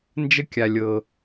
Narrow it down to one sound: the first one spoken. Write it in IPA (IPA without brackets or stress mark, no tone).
n